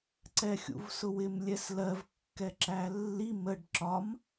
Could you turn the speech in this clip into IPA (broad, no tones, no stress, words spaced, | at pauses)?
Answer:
ǀɛxʲṵvsʊwɪm lʲɛslɜv kːɛǁælːi məɖ ǁɒm